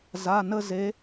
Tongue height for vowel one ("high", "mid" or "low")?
low